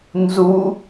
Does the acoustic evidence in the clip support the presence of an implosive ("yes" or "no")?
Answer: no